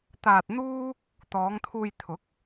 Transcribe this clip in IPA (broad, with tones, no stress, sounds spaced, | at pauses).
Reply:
t̪ aː˧ t̚ n̪ uː˥ | t̪ ɔː˨˧ ŋ t̪ʰ uː˧ j t̪ʰ ʊ˨˥ k̚